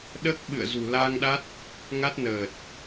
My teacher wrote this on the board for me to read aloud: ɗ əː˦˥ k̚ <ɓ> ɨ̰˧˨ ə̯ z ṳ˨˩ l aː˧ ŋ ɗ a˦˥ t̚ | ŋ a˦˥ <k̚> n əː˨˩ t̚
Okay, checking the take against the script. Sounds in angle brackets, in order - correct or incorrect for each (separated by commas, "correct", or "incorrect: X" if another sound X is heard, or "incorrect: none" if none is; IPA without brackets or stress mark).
correct, incorrect: t̚